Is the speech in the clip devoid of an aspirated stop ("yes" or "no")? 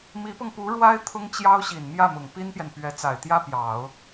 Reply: no